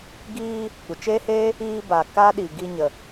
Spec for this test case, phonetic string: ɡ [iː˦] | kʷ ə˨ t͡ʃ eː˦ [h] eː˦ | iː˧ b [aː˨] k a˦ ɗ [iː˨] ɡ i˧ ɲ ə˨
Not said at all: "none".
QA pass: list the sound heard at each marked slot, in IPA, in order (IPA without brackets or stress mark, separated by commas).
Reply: iː˧, h, a˨, i˨